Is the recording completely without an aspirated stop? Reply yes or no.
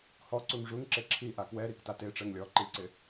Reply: no